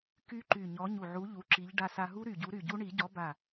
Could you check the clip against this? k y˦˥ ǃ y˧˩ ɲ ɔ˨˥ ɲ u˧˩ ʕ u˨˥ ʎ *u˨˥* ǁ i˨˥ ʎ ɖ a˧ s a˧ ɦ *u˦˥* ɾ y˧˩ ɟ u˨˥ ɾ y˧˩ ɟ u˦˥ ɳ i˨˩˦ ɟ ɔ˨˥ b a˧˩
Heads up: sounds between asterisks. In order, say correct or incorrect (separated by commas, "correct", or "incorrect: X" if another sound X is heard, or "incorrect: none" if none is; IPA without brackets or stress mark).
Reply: correct, correct